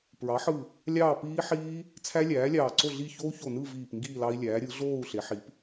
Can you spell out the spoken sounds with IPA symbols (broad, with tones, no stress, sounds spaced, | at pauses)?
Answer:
p ɹ ɑ˩˥ ħ ɯ˧˩ | lʲ ɑː˥˨ p iː˦˥ ħ iː˦˥ | t͡sʰ æ˦˥ lʲ æː˩˥ lʲ ɑː˧˩ ǀ o˥˨ ɮ i˥˨ ç o˦˥ u̯ ç o˧˩ n ɯ˥˨ v iː˧˩ p ŋ ɡ iː˥˨ l ɑ˦˥ i̯ lʲ æː˩˥ ɾʲ ɯ˩˥ ɮ oː˥˨ u̯ ɬ e˩˥ ħ i˩˥ p